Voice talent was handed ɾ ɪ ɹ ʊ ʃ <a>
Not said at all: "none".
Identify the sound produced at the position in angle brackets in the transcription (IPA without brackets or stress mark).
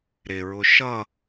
ʌ